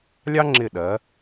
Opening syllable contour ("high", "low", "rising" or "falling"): high